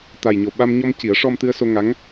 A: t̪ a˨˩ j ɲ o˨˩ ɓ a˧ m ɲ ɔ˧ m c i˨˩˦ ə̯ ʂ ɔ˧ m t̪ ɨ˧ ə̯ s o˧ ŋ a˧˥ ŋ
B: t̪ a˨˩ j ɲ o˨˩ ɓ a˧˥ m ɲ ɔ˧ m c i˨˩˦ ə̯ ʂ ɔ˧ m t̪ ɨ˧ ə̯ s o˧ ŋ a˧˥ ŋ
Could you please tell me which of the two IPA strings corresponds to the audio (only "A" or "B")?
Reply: A